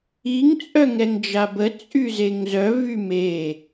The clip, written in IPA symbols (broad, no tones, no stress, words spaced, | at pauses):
iŋ t͡sʼœŋɛŋd͡ʒabə t͡sʼyzeŋzœ vyme